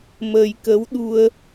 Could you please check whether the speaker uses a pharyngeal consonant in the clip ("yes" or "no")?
no